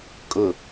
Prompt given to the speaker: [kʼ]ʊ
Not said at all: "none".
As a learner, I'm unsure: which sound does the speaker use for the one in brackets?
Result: kʼ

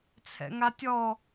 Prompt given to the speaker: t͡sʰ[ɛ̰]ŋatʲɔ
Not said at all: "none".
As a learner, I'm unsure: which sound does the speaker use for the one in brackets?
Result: ɛ̰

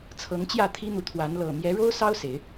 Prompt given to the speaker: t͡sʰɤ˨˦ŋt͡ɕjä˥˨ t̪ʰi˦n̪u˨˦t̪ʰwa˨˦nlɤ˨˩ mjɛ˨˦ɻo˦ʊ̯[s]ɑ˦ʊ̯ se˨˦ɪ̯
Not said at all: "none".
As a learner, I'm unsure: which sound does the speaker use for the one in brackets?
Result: s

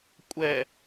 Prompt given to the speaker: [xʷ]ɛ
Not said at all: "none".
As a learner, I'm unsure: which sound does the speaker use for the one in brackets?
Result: kʷʼ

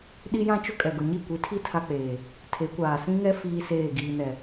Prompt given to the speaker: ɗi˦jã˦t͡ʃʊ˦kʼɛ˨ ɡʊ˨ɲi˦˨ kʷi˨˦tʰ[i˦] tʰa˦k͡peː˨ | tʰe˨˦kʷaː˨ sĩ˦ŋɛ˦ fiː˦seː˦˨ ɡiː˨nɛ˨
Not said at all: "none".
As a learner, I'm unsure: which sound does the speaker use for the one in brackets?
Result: i˦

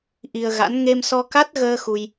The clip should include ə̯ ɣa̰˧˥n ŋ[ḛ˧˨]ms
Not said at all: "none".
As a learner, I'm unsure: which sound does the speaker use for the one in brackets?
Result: e˧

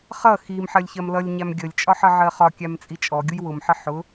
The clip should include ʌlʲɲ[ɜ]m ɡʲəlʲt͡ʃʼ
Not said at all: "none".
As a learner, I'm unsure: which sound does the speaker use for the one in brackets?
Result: æ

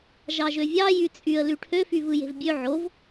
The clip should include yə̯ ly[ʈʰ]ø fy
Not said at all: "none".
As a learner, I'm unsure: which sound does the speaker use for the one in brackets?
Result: ʈʰ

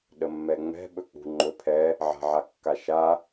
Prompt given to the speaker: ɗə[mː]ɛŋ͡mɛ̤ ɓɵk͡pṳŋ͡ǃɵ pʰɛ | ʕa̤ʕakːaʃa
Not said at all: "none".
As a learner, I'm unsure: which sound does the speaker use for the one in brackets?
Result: mː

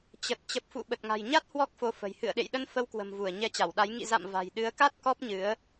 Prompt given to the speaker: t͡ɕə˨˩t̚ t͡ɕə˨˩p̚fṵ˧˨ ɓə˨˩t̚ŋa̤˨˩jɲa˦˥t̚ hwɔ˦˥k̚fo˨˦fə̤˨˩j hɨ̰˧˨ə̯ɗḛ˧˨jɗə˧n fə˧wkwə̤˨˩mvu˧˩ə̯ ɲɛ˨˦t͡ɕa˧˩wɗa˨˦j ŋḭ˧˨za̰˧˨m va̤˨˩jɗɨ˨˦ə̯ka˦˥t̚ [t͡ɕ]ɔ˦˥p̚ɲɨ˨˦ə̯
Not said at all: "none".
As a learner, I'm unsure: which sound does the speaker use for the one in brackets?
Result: k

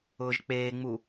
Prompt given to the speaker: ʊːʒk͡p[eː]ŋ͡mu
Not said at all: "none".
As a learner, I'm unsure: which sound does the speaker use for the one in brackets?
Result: eː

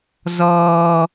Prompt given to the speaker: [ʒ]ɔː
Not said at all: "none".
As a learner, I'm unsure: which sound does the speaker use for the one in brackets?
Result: z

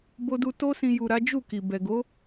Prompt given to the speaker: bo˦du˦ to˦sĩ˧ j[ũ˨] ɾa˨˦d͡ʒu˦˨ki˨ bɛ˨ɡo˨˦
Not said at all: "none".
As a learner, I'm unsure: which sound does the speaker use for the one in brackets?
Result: u˨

